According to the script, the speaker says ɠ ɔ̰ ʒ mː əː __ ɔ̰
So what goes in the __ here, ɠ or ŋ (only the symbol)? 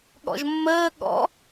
ɠ